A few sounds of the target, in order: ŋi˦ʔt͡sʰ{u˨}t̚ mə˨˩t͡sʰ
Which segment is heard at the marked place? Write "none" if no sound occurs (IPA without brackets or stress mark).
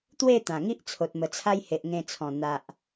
o˨